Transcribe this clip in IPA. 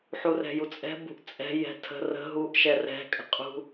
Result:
ħ u r ɛ̤ j u t͡sʼ ɛ̤ b ṳ ʔ t͡sʼ ɛ̤ j ɛ̤ tʰ ə̤ r ə̤ ɦ u ʔ ʃ ɛ r ɛ̤ kʼ ə̤ qʼ ṳ

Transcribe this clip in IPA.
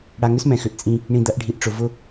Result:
ɽ a˨ ŋ ʏ˦ s m ɛ̃˨ x ʏ˨ ʔ t͡sʼ ĩ˦ | ɳ ĩ˨ d̪ ɐ˨˦ ʔ ɖʱ i˨ ʔ ʈ͡ʂ ʊ˨ v ʊ˦

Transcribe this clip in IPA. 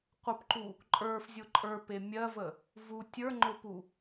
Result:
qʷ ə p ǃ u | ǃʼ ə˞ f zʲ ʊ ǃʼ ə˞ p e mʲ ɜ v ə | v u tʲ ə˞ ŋ͡ǃ ʊ p u

